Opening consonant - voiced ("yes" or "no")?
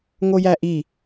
yes